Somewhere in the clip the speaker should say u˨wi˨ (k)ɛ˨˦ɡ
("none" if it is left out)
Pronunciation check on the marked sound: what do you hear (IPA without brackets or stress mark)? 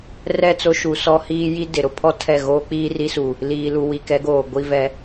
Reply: k